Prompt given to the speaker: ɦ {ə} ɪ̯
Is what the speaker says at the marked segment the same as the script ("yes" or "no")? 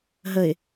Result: yes